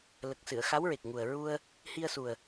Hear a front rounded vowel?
no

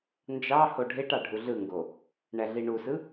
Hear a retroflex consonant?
yes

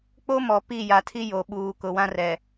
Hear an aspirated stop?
yes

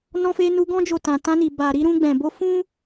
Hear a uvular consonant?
no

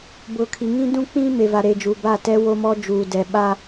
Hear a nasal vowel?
yes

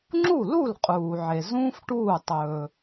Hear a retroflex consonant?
yes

